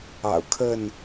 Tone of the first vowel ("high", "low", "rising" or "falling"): low